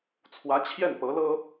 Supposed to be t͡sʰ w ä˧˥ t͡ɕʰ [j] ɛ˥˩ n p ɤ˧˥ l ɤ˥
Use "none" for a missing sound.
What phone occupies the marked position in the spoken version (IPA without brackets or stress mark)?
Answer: j